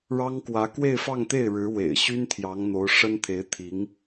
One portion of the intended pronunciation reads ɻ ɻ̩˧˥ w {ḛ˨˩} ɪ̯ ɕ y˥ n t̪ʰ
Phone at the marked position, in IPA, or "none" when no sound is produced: ḛ˨˩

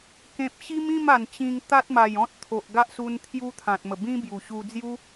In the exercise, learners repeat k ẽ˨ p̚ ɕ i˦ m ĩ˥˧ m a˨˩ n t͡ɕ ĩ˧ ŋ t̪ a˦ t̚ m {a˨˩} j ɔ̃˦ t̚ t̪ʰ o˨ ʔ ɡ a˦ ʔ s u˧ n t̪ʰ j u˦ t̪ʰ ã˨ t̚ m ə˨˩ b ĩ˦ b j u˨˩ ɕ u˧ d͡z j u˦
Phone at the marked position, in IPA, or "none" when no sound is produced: a˨˩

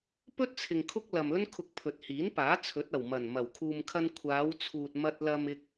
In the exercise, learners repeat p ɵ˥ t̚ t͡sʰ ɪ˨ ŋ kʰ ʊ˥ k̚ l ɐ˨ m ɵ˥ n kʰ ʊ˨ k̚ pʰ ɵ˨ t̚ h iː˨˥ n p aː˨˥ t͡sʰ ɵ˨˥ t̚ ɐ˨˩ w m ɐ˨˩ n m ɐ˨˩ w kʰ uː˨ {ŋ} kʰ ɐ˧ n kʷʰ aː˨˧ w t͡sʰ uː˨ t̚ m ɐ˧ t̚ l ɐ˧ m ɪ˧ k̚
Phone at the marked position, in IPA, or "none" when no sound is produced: m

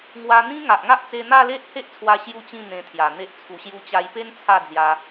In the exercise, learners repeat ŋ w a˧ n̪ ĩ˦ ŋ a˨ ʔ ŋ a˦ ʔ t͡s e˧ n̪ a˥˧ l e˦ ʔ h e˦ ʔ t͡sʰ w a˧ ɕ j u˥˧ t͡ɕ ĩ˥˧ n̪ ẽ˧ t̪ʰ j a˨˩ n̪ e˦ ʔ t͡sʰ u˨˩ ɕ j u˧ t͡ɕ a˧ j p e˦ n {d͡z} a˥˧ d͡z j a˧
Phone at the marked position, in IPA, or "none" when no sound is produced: t͡sʰ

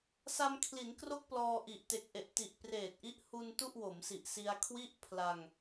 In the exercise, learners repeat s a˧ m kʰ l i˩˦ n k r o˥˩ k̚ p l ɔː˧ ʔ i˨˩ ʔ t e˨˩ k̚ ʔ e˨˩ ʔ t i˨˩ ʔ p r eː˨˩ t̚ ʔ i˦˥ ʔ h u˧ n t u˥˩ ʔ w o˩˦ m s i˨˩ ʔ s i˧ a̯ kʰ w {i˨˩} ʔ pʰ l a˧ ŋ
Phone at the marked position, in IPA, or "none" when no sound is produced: i˥˩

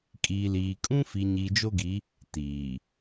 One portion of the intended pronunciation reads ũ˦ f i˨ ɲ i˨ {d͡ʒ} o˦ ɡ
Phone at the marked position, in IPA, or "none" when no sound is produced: d͡ʒ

